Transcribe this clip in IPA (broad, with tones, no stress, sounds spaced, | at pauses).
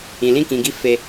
ĩ˨ l ĩ˧ k ĩ˨ ɡ i˧ f e˧